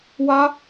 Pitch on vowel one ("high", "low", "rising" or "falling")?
high